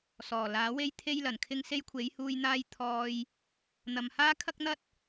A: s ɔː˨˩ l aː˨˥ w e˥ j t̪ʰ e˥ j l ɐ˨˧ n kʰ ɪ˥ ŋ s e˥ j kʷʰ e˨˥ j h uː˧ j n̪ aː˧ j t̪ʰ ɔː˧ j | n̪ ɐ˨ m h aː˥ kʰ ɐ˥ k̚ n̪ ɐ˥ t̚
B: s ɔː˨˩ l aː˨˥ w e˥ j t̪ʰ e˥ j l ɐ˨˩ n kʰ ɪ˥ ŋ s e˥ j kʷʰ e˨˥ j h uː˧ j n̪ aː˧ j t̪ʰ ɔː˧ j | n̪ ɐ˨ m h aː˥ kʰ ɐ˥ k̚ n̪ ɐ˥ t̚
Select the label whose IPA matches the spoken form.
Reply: B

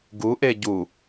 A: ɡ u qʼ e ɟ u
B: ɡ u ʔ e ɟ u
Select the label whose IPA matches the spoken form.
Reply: B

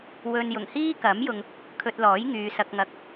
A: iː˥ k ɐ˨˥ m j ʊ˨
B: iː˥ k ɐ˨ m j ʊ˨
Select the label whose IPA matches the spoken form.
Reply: A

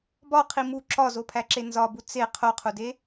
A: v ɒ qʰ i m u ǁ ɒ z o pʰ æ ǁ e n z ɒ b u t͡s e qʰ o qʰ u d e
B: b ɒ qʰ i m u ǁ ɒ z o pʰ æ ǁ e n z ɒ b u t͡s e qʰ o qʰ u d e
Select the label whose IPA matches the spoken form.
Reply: B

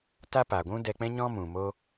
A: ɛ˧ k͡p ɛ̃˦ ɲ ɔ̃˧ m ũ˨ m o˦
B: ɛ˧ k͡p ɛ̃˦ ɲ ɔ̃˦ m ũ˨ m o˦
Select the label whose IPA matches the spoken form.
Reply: B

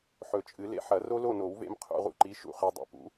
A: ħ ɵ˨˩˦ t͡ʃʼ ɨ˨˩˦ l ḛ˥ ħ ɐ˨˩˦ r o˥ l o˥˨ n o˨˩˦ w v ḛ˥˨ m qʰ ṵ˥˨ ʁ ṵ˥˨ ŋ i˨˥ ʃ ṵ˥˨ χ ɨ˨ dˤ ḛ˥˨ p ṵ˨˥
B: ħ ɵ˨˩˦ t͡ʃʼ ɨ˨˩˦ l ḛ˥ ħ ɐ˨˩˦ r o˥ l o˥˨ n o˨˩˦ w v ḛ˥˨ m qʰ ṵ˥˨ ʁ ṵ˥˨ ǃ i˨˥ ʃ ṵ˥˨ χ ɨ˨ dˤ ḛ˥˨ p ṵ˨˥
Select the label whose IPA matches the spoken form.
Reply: B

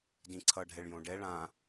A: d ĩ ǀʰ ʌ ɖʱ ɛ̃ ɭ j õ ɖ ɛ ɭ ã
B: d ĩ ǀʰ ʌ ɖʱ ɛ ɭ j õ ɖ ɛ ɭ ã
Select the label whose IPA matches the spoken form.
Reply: B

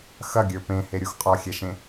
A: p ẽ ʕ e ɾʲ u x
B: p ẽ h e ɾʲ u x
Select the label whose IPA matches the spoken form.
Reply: B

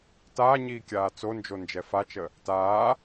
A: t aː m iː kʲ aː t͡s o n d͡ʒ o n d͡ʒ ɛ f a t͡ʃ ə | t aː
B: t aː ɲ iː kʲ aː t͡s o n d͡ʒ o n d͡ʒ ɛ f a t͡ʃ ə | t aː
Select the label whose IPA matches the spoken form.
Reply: B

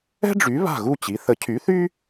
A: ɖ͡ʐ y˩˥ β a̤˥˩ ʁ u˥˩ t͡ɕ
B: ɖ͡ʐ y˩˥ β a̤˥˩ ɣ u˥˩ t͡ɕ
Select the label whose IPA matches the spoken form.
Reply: B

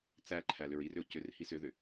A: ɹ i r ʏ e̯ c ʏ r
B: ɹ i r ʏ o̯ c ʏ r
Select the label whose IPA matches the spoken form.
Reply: B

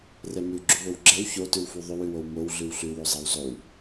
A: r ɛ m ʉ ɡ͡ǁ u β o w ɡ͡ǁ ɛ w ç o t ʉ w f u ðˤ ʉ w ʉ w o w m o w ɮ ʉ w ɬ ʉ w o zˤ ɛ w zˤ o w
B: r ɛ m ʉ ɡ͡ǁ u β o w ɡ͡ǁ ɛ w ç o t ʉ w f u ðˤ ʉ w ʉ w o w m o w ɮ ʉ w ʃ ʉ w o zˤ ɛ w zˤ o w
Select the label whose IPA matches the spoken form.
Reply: A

